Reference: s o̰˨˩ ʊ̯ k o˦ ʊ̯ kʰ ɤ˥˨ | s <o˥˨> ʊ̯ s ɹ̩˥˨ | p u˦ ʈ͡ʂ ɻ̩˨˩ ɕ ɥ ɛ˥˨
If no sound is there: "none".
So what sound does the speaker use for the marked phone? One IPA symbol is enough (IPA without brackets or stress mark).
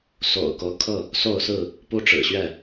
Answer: o˥˨